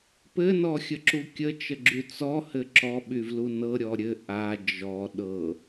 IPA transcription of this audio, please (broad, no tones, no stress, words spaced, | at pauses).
pɘnɔxʲəǁu kʲət͡ʃəɡ͡ǁy t͡sɔhɘ ǁɔɓyvlu nɤɾʲɔ ɾʲɘ ʔa d͡ʒɔ ɗɤ